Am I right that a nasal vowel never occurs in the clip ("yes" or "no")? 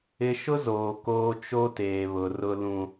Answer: no